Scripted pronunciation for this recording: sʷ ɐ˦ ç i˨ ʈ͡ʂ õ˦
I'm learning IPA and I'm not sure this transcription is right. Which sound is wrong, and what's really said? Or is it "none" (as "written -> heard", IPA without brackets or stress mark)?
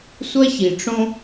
none